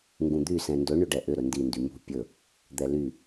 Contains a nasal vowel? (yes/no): yes